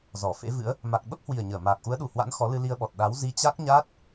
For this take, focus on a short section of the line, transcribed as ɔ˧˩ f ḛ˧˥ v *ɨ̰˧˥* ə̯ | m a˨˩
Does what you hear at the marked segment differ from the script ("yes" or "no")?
no